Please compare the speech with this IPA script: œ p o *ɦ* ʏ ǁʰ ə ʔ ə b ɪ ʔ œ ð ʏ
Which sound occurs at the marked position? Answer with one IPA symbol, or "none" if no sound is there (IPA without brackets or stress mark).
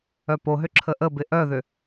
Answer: ɦ